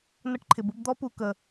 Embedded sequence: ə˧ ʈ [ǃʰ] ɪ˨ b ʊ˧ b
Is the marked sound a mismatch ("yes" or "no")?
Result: no